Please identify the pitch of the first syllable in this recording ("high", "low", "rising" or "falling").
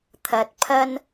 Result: low